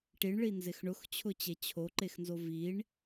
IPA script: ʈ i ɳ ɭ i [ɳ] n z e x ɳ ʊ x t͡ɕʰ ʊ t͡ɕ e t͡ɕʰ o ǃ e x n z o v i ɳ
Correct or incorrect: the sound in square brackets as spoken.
incorrect: none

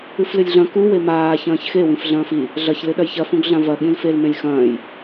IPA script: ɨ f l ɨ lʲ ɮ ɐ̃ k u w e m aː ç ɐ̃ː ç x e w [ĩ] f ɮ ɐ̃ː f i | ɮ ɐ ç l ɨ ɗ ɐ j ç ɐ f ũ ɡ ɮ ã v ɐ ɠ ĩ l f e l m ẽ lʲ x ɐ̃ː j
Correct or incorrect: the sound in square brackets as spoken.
correct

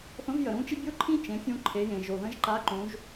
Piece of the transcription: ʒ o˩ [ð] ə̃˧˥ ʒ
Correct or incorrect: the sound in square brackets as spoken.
correct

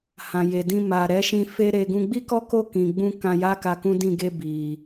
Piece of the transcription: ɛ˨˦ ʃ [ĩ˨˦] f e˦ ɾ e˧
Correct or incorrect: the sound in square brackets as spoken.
incorrect: ĩ˧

